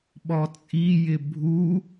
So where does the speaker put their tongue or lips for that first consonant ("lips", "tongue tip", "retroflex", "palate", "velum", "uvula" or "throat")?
lips